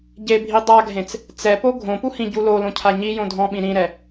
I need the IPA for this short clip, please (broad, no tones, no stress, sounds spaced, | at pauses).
ɟ e bʱ i dˤ a ɡʱ ẽ t͡s | t͡s ɛ p o ɡʱ õ p u h ĩ ɟ u l o l õ cʰ a ɲ i j õ dʱ ɔ̃ ɓ ĩ ɾ ĩ ɾ ɛ